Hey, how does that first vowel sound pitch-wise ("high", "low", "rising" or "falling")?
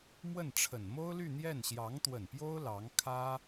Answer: falling